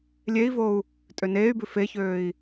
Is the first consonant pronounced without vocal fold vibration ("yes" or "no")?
no